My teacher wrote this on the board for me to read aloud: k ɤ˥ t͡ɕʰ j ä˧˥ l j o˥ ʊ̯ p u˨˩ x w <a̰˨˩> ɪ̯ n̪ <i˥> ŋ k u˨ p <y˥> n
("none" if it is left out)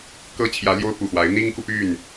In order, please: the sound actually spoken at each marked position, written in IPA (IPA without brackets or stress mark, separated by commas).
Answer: a˧˥, i˥, y˥˩